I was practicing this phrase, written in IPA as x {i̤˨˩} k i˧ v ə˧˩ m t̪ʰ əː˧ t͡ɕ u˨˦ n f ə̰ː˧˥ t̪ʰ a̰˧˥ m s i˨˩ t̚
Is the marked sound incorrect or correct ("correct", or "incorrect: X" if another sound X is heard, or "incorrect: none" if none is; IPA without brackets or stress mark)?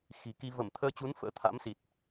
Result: correct